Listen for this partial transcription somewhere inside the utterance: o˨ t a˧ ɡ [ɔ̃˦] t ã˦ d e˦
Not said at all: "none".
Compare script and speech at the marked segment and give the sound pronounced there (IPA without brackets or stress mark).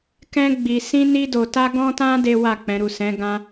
ɔ̃˦